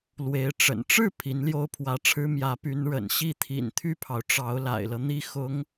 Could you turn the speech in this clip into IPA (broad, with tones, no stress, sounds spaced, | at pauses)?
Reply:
l w e˧˥ ɪ̯ ʈ͡ʂ ə̰˨˩ n ʈ͡ʂ ɻ̩˥˩ pʰ i˧˥ n l j o˥ ʊ̯ pʰ w ä˧˥ ʈ͡ʂʰ ɻ̩˥ m j ä˧˥ p y˧˥ n ɻ ə̰˨˩ n ɕ i˥˩ t̪ʰ ḭ˨˩ n t̪ʰ y˥˩ pʰ ɑ˩ ʊ̯ ʈ͡ʂ ɑ˧˥ ʊ̯ l a̰˨˩ ɪ̯ l ɤ˦ n̪ i˥˩ x ʊ˧˥ ŋ